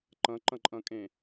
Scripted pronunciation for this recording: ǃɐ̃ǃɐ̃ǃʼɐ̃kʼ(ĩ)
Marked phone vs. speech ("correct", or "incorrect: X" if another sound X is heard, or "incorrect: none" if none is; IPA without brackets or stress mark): incorrect: ẽ